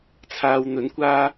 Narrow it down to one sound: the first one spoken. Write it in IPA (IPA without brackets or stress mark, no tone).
t͡sʰ